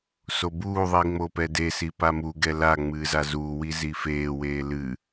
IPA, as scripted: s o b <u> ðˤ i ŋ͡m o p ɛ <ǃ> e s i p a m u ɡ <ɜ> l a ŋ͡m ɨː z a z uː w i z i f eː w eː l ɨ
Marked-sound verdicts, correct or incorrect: incorrect, incorrect, incorrect

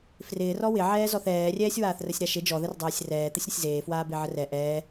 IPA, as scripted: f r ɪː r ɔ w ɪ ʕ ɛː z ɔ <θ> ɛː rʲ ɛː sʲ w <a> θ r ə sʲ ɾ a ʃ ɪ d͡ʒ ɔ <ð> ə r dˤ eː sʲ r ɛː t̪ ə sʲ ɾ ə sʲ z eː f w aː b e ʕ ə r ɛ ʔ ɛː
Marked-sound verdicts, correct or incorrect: correct, incorrect, correct

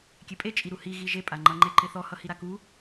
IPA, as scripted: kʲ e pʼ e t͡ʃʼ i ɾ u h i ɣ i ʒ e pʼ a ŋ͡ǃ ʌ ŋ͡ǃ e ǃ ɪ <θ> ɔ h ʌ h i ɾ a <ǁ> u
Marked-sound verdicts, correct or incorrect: correct, incorrect

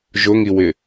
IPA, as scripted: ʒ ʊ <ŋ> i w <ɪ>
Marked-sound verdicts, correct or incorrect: correct, correct

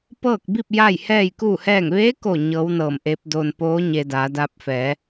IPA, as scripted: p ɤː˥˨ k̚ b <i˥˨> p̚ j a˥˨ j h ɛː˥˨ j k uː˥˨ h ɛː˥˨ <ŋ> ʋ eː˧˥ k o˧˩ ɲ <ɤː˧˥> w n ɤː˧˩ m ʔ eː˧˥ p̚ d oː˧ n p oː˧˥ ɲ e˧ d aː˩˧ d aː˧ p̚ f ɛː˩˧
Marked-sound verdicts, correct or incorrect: correct, correct, correct

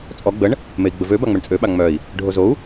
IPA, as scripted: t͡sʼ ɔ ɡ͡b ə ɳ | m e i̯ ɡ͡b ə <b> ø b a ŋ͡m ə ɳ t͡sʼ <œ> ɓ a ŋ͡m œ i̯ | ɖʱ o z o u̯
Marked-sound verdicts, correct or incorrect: incorrect, incorrect

